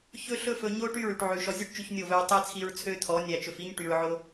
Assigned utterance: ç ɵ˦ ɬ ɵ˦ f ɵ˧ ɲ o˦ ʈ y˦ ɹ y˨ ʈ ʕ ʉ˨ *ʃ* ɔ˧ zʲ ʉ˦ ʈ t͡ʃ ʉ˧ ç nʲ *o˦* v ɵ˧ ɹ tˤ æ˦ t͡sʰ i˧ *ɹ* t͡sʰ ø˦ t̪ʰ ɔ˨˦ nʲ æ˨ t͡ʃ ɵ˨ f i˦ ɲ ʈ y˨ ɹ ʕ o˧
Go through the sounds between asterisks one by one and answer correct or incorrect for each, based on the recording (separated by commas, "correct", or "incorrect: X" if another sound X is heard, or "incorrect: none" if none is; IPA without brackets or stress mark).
correct, incorrect: o˦˨, correct